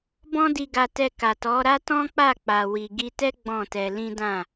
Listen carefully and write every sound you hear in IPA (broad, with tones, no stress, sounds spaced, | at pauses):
b ɔ̃˦ d i˧ ɡ a˧ t ɛ˧ k a˨ t ɔ˨˦ ɾ a˦ t ɔ̃˦ k͡p a˦˨ k͡p a˨ w i˨ ɡ i˧ t ɛ˦ ɡ͡b ɔ̃˦˨ t ɛ˧ l ĩ˦ d ã˦˨